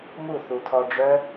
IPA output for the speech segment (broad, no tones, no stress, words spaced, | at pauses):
mu θutʰɔɖ͡ʐœ